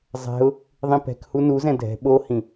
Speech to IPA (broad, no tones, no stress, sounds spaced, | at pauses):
zˤ ɛ̤ ʊ̯ | ðˤ ĩ p ɛ̤ k h u n u z ɛ̃ dʱ ɛ̤ ɓ o h ĩ